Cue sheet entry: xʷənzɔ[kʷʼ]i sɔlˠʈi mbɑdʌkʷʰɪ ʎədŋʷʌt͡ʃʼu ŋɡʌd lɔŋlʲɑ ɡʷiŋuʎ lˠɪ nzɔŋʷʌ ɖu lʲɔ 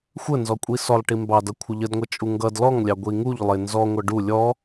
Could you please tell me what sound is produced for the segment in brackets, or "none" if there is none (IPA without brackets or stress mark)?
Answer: kʷʼ